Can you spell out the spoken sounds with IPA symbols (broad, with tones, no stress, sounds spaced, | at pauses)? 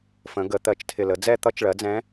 f ə̃˩˧ ɡ ə˩˧ t̪ ɜ˨˩ t͡ʃ tʰ ɪ˨˩ l ə˩˧ d͡z ɛ˦˨ t̪ ʌ˧˥ t͡ʃ ɭ ɜ˩˥ d͡z ɛ̃˧˥